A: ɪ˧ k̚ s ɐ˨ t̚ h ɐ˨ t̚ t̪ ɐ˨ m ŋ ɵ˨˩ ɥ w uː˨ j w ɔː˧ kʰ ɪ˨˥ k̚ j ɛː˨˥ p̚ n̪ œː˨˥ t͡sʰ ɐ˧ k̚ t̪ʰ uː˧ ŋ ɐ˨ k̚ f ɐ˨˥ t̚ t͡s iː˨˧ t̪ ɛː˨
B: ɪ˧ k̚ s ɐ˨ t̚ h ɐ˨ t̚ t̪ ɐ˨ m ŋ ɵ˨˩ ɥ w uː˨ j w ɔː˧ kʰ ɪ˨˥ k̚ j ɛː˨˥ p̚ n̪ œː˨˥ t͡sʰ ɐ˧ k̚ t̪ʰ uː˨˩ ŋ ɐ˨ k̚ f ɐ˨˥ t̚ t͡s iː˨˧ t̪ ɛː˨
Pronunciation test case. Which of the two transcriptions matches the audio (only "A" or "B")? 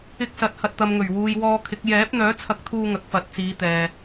A